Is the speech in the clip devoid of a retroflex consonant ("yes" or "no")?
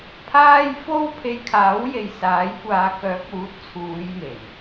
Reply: yes